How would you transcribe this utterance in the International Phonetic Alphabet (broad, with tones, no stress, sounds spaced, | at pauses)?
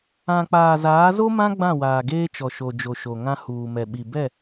ã˨ k͡p aː˨ z aː˨˦ z o˦ m ã˦ ɡ͡b ã˦˨ w aː˨ ɡ eː˦ t͡ʃ ɔ˨ ʃ o˨ d͡ʒ o˨ ʃ o˨ ŋ ã˦ h uː˨ m ɛ˨ ɓ i˨ b ɛ˦˨